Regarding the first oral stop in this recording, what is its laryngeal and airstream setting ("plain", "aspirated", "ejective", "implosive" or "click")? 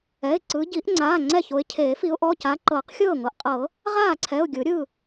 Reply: click